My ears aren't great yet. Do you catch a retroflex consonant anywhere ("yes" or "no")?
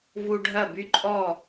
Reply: yes